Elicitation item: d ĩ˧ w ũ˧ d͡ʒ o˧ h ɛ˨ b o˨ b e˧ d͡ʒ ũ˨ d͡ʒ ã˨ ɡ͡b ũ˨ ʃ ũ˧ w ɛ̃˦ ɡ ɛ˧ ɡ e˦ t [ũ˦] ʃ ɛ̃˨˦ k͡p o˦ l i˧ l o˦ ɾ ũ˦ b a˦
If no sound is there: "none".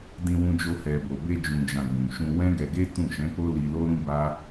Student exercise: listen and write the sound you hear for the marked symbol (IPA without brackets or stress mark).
ũ˦˨